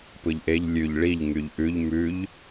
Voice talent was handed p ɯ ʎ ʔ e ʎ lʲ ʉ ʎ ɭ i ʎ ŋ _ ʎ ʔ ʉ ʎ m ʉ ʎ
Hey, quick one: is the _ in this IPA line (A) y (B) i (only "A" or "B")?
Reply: A